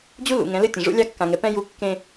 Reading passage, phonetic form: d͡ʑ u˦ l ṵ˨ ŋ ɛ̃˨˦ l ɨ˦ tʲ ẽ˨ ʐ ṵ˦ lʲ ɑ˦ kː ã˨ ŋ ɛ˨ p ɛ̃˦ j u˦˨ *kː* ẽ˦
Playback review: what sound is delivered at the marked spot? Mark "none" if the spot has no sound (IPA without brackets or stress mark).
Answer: kː